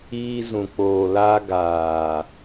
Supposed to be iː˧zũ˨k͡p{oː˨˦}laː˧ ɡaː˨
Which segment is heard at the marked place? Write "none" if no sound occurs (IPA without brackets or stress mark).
oː˨